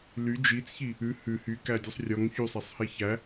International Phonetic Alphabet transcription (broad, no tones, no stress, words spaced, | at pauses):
ly d͡ʒit͡sçi | ʉ hʉ hykædʲɵsˤ rʲɔŋ çysˤæsˤhe çæ